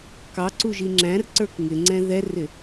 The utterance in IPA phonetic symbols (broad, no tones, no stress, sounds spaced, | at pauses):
k ɑ ǀ u ʒ i ŋ͡ǁ æ̃ r ǀ ə˞ k ŋ ɪ ŋ͡ǀ ɛ̃ ð ɛ r ɪ